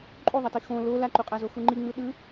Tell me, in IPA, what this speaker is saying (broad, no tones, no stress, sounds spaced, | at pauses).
ǃʼ u ðˤ ʌ t i x õ l o l a ǃ u qʼ a z o x u ŋ͡ǃ i ŋ͡m ɯ ɗ ɯ